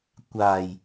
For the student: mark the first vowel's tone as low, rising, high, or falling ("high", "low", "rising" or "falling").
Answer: low